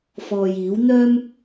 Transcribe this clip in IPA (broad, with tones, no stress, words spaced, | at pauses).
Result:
fɔː˨jiː˨˥w n̪œː˥m